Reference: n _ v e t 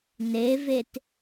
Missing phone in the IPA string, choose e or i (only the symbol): e